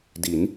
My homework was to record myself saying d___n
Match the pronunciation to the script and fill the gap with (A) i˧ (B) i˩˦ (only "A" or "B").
B